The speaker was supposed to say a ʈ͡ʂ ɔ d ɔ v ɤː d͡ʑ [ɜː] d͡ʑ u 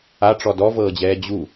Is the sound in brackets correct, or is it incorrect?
incorrect